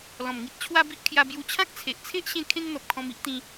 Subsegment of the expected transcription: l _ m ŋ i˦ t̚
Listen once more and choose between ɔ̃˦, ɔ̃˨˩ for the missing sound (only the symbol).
ɔ̃˨˩